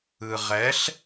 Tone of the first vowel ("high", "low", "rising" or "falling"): low